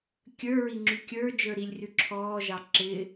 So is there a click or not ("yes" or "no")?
yes